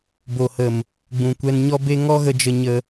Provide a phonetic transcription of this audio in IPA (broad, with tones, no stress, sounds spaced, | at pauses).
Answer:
b o˨ h ə˨ m | ɡ͡b ũ˨ kʷ ɛ˧ n ɲ ɔ˦ b e˦ ŋ ɔ˦ ɣ ə˧ d͡ʒ ə˧ ɲ ə˧